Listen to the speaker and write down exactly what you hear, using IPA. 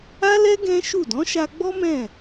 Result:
a˦ l ɛ˦ ɡ ɛ̃˦ ʃ u˦˨ d ɔ̃˨˦ ʃ a˧ ɡ͡b ɔ˦ m ɛ̃˦˨

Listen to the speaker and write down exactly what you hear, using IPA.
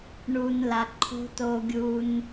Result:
ɳ u˩ n l a˩ ǃʰ o̤˧ t o˧ ɡʲ u˧ n

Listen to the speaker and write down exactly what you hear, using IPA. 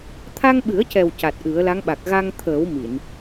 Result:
t̪ʰ a˧ ŋ ɓ ɨ˨˩˦ ə̯ c ɛ˨˩ w c a˨˩ t̚ ʔ ɨ˨˩˦ ə̯ l a˧˥ ŋ ɓ a˨˩ k̚ ɣ a˧ ŋ t̪ʰ əː˨˩˦ w m i˨˩˨ n

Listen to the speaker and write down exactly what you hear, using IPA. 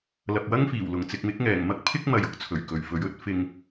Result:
l ɐ˨ p̚ w ɐ˥ ŋ f iː˨˩ w l ʊ˨˩ ŋ t͡s ɪ˨ k̚ m ɪ˨˥ k̚ ŋ ɛː˨˩ ŋ m ɐ˥ k̚ pʰ ɪ˥ k̚ m ɐ˨ j ʊ˥ k̚ t͡sʰ ɵ˨˩ ɥ k ɵ˨ ɥ f ɵ˨˥ ɥ ɵ˧ t̚ f ɪ˨ ŋ

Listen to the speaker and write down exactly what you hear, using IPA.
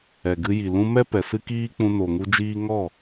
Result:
ɛ˨ ɡ ɨ˧ j i˨ l ũ˧ m ɛ˦ p ɛ˨ s ɨ˦ k iː˦ k͡p ũ˧ n o˨ ŋ u˧ d͡ʒ iː˦ ŋ ɔ˦˨

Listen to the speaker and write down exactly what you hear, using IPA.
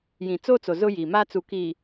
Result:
j ĩ˨ t͡s o˦ t͡s o˨ z ʊ˦ j iː˨ m aː˦ t͡s u˨ k i˨

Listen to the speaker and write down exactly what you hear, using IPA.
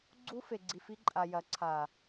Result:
ɡ͡ǀ u˧ f e˨ ɡ͡ǀ i˨ f i˧ ǃʼ a˨ j ɐ˨˦ ǀʰ aː˨

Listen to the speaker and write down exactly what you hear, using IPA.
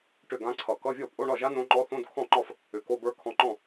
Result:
ʈ ʏ˥˩ ɡ ã˦˥ ǀʰ ʌ˨˩ k ʌ˧˥˧ vʲ ɔ˥˩ pʼ o˧˥˧ ɳ ɒ˥˩ ʒ a˦˥ n õ˦˥ ŋ͡ǃ ɔ˦˥ θ õ˧˥˧ d kʰ ɔ̃˥˩ ŋ͡ǃ ɒ˥˩ f | ʏ˨˩ k o˧˥˧ b ə˞˦˥ kʰ ɔ̃˧ ŋ͡ǃ ɔ̃˥˩

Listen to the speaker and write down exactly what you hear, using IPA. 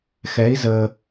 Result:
x ɛ˧˥ i̯ z ə˧

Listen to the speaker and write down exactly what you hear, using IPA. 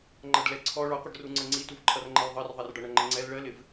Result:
ŋ͡ǃ ʌ ɖ l ɛ ǀʰ ɔ ɭ ɔ qʷ ʌ ɖ r u ŋ͡ǀ ə ŋ͡ǀ i t u v ǃʰ ʌ r ŋ͡ǃ ɜ l ðˤ ɜ r ðˤ ɛ r ɖ ɒ ɳ ʌ ŋ͡ǃ ə ŋ͡ǀ ɛ l ɭ ɜ l ɪ v

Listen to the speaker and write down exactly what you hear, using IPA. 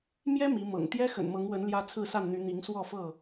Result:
m j ɛ˦ m i˨˦ m ɤ̰˨˩ ŋ t̪ j ɛ˦ x ə̰˨˩ n m ɤ˨˦ ŋ w ə˨˦ n l j ä˦ t͡sʰ ɹ̩˥˨ s a˥˨ n n̪ y˨˦ n̪ i˨˦ ŋ s w ɔ˥˨ f ɤ˥˨

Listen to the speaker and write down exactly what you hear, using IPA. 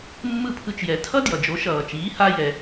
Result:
mː ɯ˥˩ pʰ ɯ˧ t͡ʃ j ɛ˩˥ tʰ ʌ˥ d j ʌ˩ d͡ʒ o˩˥ ʃ ʌː˩ t͡ʃ iː˩˥ h a˧ j ɛ˩

